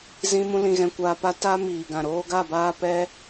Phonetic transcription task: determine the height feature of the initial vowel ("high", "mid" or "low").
high